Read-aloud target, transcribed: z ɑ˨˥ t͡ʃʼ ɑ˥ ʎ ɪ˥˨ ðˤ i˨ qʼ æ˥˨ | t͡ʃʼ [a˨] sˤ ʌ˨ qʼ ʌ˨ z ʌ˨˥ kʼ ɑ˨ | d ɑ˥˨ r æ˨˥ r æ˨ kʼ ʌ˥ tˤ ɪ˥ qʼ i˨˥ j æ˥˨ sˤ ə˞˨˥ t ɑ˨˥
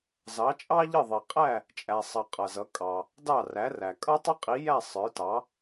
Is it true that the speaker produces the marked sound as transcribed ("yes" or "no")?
no